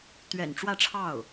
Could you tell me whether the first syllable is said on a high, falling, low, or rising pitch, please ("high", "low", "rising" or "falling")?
low